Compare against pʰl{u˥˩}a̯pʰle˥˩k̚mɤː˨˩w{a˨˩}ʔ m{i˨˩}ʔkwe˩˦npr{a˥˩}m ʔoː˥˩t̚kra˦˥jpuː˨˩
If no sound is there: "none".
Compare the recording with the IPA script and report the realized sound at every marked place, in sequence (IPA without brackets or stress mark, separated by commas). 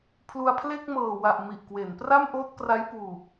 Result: u˧, a˨˩, i˨˩, a˥˩